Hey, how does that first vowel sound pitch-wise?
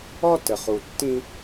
high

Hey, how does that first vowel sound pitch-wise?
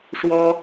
high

